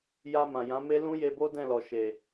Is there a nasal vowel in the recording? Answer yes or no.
yes